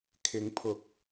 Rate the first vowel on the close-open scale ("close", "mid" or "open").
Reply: close